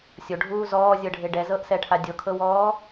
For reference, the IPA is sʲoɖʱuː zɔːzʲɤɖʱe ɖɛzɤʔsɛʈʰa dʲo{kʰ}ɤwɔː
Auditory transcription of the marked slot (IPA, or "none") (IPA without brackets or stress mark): kʰ